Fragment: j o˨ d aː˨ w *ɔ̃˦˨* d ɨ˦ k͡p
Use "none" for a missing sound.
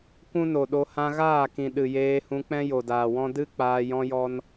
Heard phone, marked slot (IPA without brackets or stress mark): ɔ̃˦